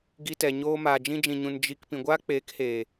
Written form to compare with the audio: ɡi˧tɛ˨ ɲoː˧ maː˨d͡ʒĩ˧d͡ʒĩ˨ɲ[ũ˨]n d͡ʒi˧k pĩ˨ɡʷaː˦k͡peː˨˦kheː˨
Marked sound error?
no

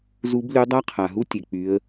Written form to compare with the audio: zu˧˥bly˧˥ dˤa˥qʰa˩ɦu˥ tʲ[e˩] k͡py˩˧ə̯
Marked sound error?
no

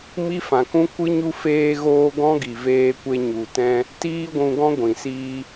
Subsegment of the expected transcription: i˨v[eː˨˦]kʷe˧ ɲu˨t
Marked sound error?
yes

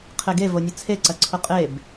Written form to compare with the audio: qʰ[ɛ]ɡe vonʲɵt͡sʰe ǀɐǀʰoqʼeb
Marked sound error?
yes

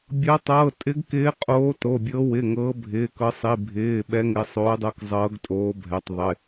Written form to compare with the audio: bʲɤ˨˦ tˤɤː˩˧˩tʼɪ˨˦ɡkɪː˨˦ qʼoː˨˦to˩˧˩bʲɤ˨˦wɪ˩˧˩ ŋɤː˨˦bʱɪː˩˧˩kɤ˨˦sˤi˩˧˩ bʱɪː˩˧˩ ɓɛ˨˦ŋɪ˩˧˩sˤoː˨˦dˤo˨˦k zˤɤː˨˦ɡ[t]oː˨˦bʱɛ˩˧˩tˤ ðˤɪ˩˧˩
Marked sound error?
yes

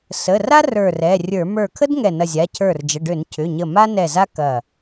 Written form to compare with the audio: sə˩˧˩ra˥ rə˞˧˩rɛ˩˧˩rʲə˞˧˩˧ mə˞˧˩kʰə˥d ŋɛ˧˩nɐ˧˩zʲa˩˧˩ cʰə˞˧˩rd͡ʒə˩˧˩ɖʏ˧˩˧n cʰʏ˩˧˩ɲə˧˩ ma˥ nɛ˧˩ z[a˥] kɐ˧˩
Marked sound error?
no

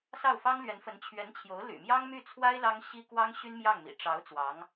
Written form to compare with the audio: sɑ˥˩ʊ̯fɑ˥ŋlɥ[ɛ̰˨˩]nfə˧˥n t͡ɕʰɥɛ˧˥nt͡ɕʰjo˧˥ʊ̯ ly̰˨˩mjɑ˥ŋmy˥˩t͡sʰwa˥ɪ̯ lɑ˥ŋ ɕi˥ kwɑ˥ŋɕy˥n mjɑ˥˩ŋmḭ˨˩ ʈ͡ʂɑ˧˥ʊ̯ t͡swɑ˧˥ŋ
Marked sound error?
yes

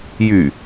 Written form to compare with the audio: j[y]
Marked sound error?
no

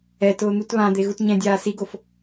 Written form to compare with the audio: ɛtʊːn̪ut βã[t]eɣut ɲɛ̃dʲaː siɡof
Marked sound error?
yes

